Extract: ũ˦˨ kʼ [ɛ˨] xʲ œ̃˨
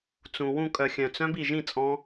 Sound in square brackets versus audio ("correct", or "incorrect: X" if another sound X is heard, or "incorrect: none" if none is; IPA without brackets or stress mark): incorrect: œ˨